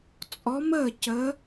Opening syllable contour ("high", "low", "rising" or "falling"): rising